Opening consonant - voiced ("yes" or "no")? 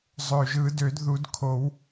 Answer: yes